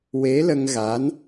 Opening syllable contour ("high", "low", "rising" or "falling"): rising